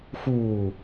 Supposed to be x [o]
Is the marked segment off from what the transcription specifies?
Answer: yes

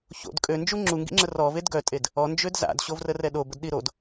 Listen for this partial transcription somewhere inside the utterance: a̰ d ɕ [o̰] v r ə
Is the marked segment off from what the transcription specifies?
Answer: yes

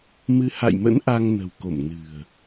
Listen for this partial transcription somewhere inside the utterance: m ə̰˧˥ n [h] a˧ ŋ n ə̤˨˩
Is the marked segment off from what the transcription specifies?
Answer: yes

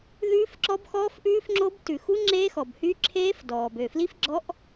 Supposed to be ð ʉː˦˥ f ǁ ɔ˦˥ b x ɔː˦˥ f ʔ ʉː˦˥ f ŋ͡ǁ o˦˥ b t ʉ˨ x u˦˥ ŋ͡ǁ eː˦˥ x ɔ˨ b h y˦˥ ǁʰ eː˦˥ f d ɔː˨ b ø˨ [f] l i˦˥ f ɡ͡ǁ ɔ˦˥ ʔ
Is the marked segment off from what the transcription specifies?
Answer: no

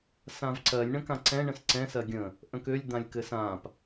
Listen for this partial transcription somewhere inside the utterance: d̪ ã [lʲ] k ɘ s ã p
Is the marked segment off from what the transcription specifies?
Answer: no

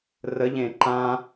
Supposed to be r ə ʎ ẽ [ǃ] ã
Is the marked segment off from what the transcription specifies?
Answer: no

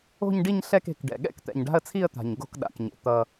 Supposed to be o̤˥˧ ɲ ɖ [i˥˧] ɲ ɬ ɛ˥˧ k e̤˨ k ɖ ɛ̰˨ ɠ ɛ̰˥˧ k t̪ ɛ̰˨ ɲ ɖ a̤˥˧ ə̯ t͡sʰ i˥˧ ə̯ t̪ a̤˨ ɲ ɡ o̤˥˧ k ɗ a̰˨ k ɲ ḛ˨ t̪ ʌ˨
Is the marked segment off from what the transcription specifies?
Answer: no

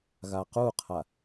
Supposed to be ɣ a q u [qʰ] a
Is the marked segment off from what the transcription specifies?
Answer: no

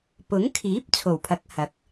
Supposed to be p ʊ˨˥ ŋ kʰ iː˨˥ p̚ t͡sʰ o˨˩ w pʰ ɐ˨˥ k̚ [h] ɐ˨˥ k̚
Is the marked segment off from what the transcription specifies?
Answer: no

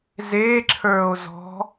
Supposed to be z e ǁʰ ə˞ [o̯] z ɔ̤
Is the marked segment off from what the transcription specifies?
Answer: no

